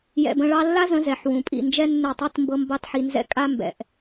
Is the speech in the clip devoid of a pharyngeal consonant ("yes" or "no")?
no